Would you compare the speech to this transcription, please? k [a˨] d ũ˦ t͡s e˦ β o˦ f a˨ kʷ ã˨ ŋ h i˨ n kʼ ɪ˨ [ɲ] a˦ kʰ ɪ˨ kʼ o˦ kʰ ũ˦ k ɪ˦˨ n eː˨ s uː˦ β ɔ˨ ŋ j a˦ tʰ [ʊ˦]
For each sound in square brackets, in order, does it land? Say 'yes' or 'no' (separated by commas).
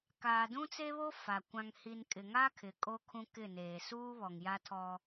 no, no, no